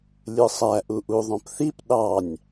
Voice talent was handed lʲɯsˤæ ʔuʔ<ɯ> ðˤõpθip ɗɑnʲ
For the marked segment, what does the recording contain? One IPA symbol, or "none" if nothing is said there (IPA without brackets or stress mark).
u